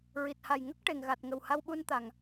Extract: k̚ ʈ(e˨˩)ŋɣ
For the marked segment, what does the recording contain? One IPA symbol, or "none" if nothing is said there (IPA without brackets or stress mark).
e˨˩